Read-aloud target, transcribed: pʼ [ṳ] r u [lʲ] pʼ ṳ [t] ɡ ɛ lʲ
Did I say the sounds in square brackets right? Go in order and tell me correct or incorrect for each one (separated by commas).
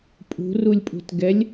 correct, correct, correct